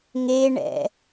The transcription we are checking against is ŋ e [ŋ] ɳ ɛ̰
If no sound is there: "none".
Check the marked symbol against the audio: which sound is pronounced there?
none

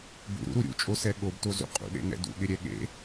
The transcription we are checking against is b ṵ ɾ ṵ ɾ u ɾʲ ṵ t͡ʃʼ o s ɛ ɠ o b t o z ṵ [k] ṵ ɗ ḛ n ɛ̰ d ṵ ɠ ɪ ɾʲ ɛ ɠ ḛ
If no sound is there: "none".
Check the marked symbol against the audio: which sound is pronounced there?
qʼ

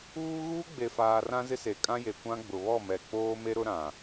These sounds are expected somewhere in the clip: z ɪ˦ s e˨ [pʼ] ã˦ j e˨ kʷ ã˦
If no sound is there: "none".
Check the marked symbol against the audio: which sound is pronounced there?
kʼ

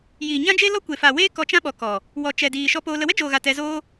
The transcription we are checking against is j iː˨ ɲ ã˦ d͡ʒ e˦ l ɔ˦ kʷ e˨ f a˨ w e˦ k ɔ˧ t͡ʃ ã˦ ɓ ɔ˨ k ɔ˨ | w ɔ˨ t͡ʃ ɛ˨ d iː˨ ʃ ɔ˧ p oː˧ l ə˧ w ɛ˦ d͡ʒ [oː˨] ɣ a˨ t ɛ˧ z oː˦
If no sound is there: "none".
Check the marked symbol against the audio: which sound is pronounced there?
oː˨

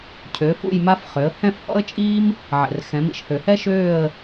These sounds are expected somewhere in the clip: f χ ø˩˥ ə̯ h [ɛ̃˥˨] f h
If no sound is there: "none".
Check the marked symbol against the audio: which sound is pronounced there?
ɛ̃˥˨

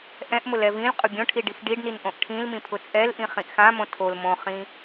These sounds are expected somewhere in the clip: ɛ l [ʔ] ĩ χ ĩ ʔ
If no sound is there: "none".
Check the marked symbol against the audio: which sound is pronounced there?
ʔ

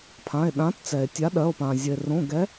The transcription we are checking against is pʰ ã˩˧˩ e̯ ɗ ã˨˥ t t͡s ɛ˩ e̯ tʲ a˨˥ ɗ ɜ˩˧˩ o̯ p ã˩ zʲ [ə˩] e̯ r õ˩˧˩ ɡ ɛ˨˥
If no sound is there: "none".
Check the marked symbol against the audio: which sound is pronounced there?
ə˩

